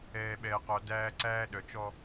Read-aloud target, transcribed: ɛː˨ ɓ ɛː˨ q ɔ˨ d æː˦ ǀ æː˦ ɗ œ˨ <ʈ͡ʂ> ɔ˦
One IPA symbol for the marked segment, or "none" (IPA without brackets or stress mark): t͡ʃ